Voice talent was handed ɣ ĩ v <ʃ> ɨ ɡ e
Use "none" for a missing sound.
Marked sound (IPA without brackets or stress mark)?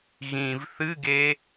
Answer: θ